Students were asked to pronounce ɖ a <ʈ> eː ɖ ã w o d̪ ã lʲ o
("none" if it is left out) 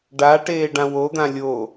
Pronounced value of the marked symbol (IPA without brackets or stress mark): ʈ